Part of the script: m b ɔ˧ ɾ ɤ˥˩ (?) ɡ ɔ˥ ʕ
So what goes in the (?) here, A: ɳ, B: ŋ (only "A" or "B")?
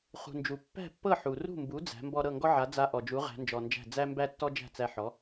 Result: B